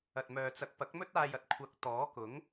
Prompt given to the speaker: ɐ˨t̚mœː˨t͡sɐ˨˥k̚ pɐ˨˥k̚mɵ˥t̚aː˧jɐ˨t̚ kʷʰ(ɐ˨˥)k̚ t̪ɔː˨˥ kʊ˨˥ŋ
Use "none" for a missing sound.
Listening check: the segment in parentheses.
ɐ˨˥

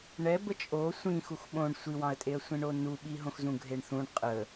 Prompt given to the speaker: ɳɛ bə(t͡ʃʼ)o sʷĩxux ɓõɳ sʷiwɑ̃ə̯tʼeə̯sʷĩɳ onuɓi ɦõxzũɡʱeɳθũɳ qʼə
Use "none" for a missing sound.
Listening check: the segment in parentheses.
t͡ʃʼ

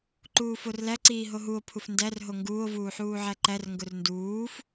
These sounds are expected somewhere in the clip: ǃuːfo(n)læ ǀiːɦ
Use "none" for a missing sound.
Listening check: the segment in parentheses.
r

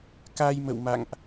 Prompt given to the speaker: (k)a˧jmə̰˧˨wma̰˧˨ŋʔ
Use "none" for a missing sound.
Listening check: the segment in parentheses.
k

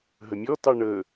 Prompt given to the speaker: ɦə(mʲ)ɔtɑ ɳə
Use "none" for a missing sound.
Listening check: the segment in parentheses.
mʲ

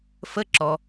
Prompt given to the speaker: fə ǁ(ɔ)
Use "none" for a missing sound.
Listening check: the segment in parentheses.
ɔ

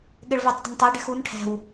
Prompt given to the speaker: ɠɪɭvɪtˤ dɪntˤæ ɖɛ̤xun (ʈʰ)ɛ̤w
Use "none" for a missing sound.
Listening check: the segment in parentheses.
ʈʰ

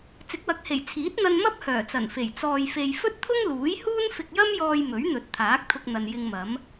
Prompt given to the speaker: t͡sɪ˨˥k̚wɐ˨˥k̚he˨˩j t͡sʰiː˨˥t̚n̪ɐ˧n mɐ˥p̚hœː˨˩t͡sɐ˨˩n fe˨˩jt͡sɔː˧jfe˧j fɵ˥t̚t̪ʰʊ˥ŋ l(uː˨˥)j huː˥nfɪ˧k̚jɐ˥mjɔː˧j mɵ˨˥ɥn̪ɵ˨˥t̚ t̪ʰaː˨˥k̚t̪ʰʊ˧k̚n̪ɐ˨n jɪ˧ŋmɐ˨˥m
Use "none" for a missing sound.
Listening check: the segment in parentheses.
uː˨˥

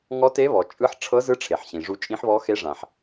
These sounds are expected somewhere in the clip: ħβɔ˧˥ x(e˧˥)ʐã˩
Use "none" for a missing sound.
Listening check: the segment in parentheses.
e˧˥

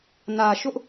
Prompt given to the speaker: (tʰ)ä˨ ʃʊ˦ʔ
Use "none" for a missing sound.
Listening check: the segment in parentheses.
n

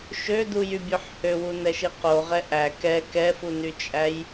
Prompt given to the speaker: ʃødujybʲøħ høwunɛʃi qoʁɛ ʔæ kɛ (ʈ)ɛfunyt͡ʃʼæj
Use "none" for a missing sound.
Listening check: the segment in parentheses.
k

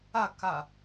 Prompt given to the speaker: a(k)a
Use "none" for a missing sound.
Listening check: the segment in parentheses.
k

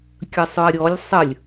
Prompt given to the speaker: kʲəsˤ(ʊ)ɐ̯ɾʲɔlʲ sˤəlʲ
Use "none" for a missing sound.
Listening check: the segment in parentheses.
ʊ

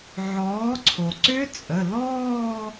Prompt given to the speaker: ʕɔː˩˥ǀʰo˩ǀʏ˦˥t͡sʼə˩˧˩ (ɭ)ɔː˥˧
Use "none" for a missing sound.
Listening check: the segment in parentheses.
l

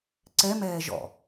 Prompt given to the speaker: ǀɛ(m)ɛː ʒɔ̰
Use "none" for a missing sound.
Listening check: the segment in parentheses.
m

